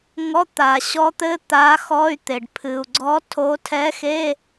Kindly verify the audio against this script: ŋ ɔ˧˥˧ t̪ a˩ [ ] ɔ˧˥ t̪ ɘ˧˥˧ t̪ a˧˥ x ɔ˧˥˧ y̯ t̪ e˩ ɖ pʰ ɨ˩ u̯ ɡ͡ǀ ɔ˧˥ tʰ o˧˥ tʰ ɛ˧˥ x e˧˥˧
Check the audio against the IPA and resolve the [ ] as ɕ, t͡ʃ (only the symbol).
ɕ